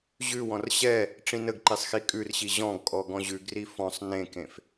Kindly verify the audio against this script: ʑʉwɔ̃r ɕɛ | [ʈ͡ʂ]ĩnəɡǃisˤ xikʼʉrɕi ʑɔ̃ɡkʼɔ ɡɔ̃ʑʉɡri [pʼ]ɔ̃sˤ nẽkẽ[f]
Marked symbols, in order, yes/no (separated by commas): yes, no, yes